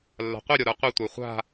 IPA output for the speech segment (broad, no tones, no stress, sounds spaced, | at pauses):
lː a̤ qʷ i ɾʲ ɔ ɾ ə˞ qʷ i tʷ ə˞ χʷ a̤